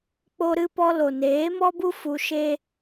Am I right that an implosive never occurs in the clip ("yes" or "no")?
yes